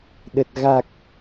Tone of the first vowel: low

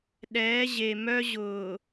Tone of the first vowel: rising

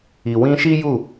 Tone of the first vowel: low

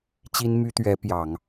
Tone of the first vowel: high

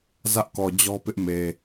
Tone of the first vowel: high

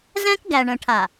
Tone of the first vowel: high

